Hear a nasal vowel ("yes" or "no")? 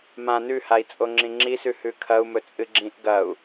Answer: yes